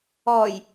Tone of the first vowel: low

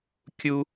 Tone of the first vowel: high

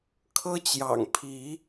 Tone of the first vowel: high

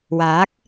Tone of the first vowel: rising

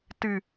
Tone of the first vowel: low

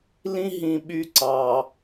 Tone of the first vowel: high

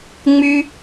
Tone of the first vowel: high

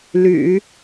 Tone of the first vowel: low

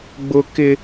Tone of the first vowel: high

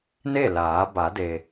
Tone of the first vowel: falling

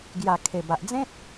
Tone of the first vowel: low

